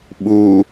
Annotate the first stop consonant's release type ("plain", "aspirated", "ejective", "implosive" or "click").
implosive